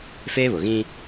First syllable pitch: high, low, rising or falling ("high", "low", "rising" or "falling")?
high